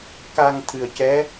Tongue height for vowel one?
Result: low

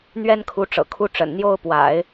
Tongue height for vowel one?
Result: mid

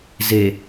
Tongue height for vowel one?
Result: mid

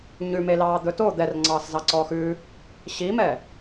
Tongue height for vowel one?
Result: high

